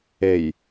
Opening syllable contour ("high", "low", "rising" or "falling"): low